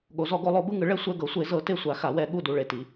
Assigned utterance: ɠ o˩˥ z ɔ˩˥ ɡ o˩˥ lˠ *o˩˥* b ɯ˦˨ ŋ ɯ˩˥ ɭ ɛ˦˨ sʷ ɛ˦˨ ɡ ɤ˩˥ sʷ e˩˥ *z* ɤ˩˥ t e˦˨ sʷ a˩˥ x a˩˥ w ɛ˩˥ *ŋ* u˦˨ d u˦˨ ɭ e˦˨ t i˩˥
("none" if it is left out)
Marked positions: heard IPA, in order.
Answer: o˩˥, z, ɠ

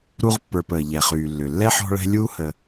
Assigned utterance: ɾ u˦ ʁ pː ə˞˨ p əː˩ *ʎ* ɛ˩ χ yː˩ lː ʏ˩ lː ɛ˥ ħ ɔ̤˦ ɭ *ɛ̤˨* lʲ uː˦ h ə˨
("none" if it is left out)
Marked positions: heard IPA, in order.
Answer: ʎ, ɛ̤˦

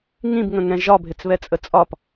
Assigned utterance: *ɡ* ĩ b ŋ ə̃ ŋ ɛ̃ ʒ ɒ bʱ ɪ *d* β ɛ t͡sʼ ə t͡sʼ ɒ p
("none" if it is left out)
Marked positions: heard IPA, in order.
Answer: ŋ, t͡s

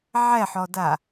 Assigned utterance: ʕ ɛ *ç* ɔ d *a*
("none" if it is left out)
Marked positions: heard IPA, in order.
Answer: ħ, a

